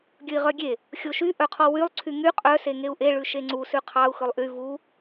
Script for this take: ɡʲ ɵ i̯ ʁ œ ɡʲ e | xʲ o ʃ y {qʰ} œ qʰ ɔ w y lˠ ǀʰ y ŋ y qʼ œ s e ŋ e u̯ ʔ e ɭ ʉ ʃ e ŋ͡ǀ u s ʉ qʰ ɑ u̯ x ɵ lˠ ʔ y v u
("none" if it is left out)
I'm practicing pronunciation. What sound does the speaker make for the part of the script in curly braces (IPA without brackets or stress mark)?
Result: ʔ